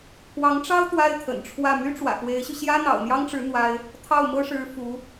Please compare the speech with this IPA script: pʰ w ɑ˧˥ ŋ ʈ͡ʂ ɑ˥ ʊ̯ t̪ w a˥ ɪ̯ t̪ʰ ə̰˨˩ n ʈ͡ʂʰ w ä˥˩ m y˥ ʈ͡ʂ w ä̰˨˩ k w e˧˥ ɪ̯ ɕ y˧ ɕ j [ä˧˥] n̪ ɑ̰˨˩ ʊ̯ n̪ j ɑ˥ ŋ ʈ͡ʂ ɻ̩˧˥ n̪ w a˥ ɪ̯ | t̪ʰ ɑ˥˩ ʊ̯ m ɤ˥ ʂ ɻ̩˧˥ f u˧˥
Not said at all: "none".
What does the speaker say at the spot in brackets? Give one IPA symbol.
ä˥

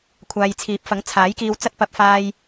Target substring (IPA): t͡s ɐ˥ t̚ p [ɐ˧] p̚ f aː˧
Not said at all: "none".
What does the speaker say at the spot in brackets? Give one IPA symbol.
ɐ˧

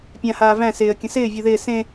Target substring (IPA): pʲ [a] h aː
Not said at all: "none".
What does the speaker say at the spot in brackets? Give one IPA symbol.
ã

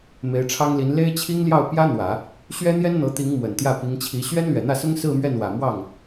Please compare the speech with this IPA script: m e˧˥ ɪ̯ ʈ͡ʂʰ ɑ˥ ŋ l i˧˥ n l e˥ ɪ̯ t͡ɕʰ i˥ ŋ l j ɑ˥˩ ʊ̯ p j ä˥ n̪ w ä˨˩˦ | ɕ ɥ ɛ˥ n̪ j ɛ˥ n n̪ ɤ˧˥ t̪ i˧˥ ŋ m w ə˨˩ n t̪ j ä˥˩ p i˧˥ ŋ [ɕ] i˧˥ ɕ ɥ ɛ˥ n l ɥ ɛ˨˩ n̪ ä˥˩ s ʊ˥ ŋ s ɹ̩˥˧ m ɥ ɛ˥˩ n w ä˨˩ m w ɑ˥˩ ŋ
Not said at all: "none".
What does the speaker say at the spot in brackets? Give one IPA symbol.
t͡ɕʰ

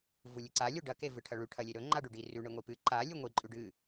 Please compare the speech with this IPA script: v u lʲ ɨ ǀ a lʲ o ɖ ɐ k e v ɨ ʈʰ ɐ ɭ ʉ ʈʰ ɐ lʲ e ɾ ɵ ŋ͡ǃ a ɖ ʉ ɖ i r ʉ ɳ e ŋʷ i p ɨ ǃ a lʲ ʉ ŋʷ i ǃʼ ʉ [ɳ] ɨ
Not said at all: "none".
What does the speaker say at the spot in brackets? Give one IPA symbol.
ɖ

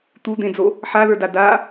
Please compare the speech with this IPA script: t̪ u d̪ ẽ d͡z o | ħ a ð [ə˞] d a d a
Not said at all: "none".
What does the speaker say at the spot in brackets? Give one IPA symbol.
ə˞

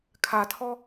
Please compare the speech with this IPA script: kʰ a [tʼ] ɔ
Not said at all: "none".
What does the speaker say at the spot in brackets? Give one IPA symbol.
tʰ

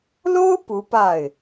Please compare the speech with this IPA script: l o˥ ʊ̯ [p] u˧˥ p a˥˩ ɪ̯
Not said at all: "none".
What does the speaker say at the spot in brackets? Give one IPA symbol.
p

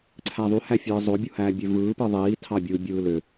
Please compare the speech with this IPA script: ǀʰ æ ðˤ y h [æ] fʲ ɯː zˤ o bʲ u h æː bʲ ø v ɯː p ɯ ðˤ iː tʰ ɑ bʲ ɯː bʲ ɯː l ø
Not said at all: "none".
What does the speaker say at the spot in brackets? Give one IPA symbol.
æ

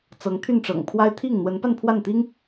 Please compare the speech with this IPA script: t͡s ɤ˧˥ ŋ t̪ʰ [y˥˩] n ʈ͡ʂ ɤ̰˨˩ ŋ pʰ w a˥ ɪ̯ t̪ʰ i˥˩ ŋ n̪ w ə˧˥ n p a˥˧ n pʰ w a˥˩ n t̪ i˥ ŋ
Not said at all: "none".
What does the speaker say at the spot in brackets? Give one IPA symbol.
y˥˩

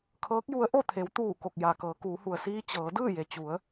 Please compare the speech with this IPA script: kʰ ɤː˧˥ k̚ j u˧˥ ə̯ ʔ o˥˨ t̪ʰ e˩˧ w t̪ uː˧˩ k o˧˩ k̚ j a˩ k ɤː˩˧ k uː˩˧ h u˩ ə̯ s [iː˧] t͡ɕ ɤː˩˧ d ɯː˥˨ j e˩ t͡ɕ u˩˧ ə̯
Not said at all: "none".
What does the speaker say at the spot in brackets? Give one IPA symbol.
iː˧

